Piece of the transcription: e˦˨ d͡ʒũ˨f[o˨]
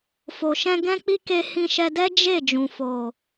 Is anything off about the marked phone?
no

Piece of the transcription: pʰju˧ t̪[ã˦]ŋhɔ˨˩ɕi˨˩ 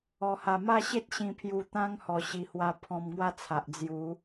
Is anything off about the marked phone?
no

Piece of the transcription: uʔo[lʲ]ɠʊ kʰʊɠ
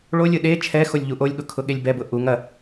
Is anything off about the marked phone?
no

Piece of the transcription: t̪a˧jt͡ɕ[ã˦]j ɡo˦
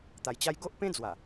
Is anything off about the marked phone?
yes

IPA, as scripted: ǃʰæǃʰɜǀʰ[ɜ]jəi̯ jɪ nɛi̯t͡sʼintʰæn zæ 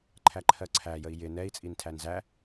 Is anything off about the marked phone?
yes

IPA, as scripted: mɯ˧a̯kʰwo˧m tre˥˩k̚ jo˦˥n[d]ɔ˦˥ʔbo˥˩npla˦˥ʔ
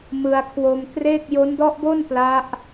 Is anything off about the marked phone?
no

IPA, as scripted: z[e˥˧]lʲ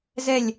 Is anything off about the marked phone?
yes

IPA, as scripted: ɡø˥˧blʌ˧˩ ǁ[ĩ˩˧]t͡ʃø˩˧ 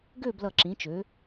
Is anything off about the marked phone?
no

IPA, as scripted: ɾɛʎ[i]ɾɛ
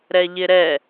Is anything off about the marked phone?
yes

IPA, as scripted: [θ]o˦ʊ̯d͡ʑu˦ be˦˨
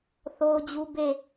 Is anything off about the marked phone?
no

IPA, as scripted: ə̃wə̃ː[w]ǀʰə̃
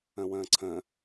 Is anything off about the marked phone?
yes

